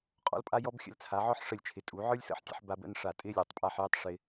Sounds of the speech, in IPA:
qʼɔ̰˧lpʼa˧jɔ˧b xʲə̰˧lt͡sʰa˩˧ʕɔ˥ħ ʂə˧˩lʲt͡ʃʰɪ˩˧tʼu˩˧ ʕə˞˥lʲsə̰˥˧ħtʲə̰˧ħ ba˧bə̰˥˧nʂa˧˩ tʼɪ˥lʲə˞˩˧tˤpʼa˥˧ħjɪ˥˧tˤ ʂɪ˧

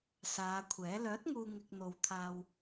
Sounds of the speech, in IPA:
saː˨˧kʷʰɛː˨˥ lœː˨˥t̚ŋuː˨ ŋɪ˨k̚n̪o˨w t̪ʰaː˧w

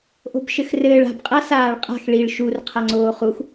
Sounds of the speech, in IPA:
ʔo̤bʃɘxrɘːɭ a̤bqʼa saːɭqʼa̤x ɭiɭ ʃur qʰaŋ͡ǀoːχux

